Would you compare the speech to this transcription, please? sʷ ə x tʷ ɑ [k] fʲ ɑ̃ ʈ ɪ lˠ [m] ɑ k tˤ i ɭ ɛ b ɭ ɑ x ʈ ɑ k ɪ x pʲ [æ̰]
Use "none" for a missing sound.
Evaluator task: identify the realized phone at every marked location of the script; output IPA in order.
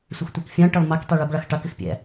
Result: k, m, æ̰

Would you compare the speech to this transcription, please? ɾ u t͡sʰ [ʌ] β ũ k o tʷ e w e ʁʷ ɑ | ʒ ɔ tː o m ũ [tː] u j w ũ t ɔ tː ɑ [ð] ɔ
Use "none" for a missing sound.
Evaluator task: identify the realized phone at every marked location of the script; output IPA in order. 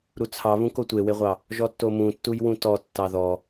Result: ɑ, tː, ð

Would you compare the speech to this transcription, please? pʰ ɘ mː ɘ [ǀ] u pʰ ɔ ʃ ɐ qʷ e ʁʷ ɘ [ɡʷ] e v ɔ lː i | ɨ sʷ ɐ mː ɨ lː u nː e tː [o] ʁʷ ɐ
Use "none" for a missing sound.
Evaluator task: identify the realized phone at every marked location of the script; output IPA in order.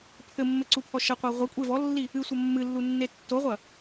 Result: ǀ, kʷʼ, o

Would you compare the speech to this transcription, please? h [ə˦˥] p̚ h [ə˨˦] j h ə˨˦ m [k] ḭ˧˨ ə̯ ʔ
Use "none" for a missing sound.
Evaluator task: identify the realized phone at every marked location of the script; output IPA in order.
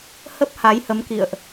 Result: ə˦˥, a˨˦, k

